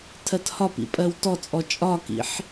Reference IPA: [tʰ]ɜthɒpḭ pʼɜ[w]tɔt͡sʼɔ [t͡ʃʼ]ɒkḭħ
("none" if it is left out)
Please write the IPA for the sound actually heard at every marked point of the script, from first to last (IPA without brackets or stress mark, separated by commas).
tʰ, w, t͡ʃʼ